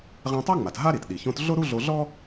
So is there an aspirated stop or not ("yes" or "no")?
no